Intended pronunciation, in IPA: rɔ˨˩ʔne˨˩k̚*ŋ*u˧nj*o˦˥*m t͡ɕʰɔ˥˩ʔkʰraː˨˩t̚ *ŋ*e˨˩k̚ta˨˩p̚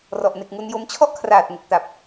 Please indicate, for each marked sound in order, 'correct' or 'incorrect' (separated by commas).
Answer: correct, correct, correct